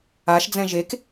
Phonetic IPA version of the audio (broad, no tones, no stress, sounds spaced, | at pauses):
a ʃ d͡z ɛ̃ ʒ e k